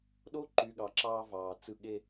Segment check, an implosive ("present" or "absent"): present